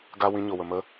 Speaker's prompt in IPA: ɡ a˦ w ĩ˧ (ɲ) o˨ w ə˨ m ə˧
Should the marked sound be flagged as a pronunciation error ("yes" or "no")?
no